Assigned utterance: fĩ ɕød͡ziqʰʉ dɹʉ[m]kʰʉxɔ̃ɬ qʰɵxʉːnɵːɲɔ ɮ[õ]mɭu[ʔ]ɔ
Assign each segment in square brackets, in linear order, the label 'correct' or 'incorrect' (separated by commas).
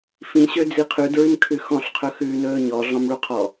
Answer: correct, incorrect, incorrect